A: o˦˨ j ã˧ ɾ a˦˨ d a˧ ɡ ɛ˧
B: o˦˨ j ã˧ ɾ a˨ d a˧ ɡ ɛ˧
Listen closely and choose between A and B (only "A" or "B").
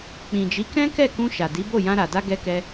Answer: B